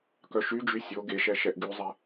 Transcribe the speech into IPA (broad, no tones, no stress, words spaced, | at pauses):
kœʃyd͡ʒy sʲo ɡeʃɛ ʃɛʔɡyzˤe